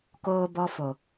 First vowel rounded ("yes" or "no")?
yes